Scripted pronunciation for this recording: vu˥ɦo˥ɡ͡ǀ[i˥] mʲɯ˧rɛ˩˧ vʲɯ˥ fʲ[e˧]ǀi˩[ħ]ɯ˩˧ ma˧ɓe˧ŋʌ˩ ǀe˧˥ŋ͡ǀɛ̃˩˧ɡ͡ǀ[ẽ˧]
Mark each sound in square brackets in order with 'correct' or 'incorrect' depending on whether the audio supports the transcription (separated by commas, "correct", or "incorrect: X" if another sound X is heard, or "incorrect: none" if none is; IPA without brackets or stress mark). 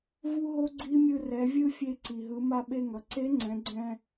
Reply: correct, correct, incorrect: ɦ, incorrect: ɛ̃˧